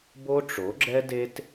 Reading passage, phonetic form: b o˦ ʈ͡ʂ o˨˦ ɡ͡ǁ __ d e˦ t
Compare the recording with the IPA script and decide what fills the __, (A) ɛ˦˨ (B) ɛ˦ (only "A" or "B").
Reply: B